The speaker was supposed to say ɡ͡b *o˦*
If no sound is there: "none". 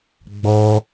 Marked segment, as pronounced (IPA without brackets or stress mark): ɔ˦